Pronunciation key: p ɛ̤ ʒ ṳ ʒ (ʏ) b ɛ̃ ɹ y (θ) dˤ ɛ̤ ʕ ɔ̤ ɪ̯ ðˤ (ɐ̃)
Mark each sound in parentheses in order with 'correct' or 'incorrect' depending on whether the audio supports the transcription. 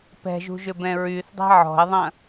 correct, correct, correct

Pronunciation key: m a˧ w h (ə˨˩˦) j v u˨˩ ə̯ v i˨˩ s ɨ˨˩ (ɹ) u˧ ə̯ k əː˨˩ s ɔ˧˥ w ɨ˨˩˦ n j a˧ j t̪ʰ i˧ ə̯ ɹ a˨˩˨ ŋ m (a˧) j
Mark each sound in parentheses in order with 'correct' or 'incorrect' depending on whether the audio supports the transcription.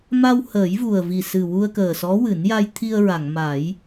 incorrect, incorrect, incorrect

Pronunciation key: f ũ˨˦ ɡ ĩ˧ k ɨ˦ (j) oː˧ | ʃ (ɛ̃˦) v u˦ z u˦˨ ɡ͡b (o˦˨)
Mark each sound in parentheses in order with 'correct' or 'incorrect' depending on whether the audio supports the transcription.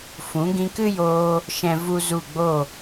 correct, correct, correct

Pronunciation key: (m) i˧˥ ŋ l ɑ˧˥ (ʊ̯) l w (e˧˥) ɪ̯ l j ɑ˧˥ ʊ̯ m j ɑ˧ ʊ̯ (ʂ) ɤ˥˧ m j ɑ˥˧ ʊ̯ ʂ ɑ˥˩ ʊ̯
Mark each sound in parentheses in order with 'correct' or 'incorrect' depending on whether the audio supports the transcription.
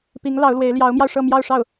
incorrect, correct, correct, correct

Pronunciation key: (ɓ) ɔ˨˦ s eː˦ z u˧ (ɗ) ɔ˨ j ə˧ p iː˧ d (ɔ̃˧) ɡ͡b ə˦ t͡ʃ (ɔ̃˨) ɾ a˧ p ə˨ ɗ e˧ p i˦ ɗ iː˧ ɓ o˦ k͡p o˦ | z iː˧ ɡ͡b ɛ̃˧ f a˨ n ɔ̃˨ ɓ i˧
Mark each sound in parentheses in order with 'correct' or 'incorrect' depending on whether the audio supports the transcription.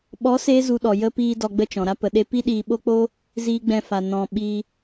correct, correct, incorrect, correct

